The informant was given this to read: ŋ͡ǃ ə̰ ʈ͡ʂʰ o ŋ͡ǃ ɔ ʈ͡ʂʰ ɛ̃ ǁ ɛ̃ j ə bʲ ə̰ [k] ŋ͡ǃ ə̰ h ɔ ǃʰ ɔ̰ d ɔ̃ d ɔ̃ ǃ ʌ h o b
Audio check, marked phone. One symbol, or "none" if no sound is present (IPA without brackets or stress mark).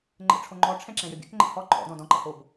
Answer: k